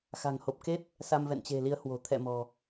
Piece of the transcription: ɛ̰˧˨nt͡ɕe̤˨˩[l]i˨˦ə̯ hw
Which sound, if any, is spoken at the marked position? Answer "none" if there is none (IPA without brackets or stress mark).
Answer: l